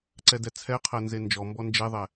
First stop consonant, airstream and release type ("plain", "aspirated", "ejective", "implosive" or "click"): click